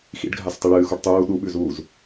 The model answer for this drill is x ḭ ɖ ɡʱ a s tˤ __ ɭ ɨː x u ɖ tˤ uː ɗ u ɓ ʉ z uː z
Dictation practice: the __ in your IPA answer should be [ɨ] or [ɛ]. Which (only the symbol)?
ɨ